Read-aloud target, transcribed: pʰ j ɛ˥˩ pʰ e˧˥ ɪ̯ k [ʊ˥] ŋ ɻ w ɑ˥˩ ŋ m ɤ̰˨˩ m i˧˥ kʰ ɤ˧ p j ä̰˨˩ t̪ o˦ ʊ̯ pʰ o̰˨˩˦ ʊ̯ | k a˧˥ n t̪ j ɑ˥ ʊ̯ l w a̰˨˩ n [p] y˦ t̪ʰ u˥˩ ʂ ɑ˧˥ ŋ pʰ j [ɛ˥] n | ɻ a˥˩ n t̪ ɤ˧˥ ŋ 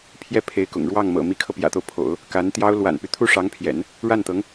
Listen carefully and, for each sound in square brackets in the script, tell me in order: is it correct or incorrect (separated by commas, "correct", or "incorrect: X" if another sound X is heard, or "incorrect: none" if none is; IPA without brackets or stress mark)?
incorrect: ʊ̰˨˩, correct, incorrect: ɛ̰˨˩˦